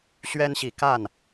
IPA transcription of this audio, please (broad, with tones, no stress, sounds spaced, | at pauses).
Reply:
ɕ ɥ ɛ˦ n ɕ i˨˦ k a˥˨ n